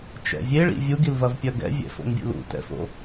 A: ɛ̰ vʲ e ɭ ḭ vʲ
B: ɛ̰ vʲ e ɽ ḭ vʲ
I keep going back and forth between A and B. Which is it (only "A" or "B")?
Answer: A